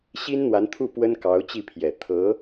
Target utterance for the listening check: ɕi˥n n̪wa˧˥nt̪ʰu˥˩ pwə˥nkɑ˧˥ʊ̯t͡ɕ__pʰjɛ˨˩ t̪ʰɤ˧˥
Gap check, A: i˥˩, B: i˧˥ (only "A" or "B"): A